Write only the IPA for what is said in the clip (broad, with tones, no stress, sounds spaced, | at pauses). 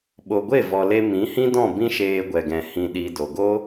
ɓ o˨ ɡʷ e˦˨ v ɔ˨ l e˧ m ĩ˨˦ h ĩ˦ d ɔ̃˦˨ b ĩ˦ ʃ eː˧ ɡʷ ɛ˨ ɡ ɛ̃˨ h ĩ˧ ɗ i˧ d o˨ ɡ o˦